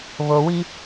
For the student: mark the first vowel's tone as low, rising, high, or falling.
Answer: low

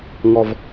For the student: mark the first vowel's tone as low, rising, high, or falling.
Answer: low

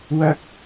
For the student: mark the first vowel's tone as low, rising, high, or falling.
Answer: high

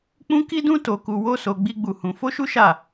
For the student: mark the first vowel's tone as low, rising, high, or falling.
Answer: high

